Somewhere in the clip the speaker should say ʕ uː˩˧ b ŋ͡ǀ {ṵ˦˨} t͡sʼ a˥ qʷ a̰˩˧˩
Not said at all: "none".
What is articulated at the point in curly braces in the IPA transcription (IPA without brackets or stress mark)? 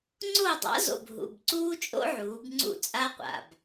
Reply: ṵ˦˨